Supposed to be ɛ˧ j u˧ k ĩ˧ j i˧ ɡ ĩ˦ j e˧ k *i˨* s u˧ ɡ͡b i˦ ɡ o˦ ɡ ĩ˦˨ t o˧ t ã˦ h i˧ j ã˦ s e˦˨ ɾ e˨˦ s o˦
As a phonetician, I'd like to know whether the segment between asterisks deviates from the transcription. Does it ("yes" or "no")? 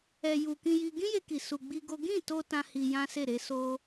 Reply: no